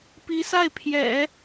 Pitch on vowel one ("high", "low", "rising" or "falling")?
rising